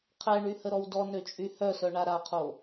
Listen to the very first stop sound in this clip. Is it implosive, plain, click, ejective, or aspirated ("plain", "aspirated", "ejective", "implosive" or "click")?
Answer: aspirated